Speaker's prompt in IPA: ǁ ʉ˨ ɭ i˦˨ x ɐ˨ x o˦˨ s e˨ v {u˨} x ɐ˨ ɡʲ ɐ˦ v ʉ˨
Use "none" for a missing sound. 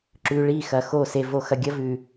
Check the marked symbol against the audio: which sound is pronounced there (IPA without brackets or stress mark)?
o˨